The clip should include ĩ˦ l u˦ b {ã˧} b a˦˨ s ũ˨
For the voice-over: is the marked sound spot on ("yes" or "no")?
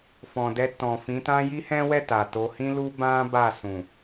no